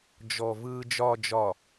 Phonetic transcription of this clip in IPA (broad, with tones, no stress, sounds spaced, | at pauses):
d͡ʒ ɔ˨ v ɯː˨ d͡ʒ ɒː˨ d͡ʒ ɒ˨